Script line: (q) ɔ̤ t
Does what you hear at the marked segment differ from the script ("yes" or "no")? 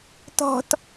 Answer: yes